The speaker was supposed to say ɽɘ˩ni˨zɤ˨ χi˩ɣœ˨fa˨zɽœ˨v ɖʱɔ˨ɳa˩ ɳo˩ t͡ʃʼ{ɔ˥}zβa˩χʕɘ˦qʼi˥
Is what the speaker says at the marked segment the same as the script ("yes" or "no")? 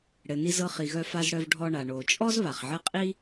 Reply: yes